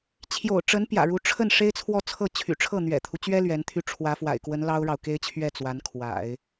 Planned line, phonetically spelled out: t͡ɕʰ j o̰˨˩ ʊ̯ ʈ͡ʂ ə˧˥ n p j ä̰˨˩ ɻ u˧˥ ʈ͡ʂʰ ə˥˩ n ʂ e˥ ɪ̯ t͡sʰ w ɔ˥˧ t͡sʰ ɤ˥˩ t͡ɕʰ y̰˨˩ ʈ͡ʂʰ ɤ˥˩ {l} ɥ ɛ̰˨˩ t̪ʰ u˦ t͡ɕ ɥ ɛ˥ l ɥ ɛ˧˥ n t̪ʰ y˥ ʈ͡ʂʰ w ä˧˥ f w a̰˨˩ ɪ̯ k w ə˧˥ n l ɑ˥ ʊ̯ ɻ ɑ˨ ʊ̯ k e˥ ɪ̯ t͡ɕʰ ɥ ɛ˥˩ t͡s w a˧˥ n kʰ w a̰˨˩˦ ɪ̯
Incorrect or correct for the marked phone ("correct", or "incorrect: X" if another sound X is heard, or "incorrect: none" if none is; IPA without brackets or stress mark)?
incorrect: n̪